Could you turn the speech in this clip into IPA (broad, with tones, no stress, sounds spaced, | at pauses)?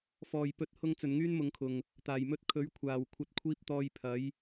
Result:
f ɔː˨ j p ɵ˨˥ t̚ h ʊ˧ ŋ t͡s ɵ˨ n ŋ yː˥ n m ʊ˨˧ ŋ kʰ ʊ˨ ŋ | t̪ aː˨˩ j m ɵ˧ t̚ kʰ ɵ˨˥ ɥ kʷʰ aː˨ w kʷʰ ɐ˧ t̚ kʷʰ iː˧ p̚ t̪ ɔː˧ j pʰ ɐ˨˥ j